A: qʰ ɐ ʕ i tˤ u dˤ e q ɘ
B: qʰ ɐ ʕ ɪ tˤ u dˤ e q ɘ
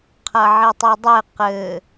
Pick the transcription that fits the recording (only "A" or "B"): A